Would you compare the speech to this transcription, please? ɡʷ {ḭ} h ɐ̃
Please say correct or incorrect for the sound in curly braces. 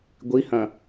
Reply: incorrect